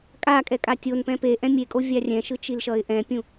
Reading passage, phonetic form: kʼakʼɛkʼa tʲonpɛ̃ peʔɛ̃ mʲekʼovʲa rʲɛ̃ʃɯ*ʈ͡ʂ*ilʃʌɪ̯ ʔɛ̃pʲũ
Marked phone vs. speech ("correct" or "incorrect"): incorrect